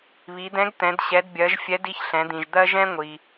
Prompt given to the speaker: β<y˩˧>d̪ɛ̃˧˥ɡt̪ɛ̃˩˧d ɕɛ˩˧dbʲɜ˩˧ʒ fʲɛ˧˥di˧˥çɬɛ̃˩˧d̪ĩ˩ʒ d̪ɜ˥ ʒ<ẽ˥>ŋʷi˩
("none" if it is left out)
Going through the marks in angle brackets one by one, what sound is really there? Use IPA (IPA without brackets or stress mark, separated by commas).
i˩˧, ɛ̃˥